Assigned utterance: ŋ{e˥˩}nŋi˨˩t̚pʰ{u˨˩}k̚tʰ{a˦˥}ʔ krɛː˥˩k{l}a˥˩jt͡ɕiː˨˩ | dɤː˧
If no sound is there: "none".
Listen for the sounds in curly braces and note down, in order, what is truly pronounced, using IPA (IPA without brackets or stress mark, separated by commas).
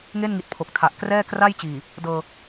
e˥˩, o˨˩, a˨˩, r